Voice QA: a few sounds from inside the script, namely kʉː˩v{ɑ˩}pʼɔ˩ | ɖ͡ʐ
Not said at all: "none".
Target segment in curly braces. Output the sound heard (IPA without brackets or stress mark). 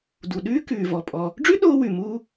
ɔ˩